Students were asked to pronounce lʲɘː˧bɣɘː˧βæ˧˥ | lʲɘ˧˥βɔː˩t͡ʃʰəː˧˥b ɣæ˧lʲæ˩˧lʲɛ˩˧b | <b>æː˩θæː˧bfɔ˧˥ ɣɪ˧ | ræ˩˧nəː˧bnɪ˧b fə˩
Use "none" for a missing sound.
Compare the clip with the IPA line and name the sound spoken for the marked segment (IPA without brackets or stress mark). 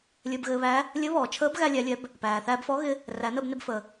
p